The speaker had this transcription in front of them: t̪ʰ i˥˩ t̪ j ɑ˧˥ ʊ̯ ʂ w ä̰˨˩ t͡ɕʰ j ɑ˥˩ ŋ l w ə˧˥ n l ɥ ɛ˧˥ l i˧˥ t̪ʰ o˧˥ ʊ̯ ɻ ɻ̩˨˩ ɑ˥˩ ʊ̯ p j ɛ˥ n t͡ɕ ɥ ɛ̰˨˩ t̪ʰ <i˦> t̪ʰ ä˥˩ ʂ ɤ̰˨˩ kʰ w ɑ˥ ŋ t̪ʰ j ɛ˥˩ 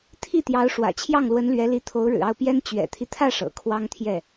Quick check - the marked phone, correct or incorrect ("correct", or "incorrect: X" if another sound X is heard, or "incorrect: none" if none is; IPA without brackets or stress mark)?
correct